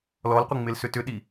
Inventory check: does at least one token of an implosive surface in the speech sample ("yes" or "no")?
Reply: yes